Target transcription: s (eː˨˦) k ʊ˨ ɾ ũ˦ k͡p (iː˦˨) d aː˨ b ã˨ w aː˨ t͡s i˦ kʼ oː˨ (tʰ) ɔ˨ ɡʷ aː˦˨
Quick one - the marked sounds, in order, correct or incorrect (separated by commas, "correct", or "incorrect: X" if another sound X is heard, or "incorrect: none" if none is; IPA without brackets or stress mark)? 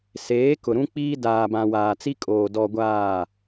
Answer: correct, incorrect: iː˦, incorrect: d